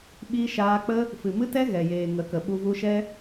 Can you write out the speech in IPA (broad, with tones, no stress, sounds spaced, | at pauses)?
ɓ i˧ ʃ aː˧ k͡p ə˦ | f ɨ˨ m ɨ˦ t ɛ˦ ɣ ɛ˨ j eː˨ ŋ ə˨˦ k ə˨ ɓ u˧ v u˧ ʃ ɛ˦